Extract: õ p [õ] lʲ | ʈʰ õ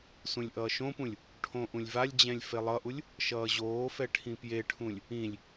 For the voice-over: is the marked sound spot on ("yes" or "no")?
no